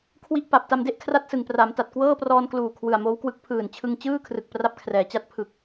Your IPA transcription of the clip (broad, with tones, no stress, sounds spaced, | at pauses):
kʰ w i˥˩ ʔ p a˨˩ p̚ t a˧ m d e˥˩ ʔ kʰ r a˥˩ t̚ s ɯ˨˩ ŋ p r a˩˦ m t a˨˩ t̚ k w ɤː˥˩ p r ɔː˧ n k l uː˨˩ kʰ w ɯ˨˩ a̯ m oː˦˥ w k w ɯ˦˥ k̚ pʰ ɯː˨˩ n t͡ɕʰ ɯ˧ ŋ t͡ɕ ɯː˥˩ kʰ r ɯ˨˩ k̚ p r a˥˩ p̚ kʰ r ɛː˩˦ t͡ɕ a˦˥ t̚ pʰ ɯ˨˩ k̚